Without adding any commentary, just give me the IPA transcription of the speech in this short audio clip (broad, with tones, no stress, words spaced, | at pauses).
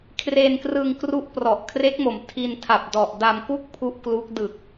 kʰre˧nkrɯ˧ŋkru˦˥ʔ prɔ˨˩ʔ kʰre˦˥k̚mo˩˦m tʰi˧ntʰa˨˩p̚dɔ˨˩ʔda˧m ku˥˩k̚ pʰu˦˥ʔklu˦˥k̚ dɯ˨˩k̚